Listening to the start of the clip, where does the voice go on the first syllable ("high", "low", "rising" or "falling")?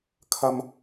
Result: high